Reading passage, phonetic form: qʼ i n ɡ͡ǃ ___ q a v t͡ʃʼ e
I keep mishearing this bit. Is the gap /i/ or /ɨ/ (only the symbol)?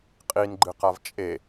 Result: ɨ